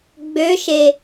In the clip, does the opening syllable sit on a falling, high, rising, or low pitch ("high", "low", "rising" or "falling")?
rising